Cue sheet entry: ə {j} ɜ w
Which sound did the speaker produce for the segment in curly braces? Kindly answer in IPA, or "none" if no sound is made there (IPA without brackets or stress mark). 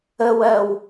w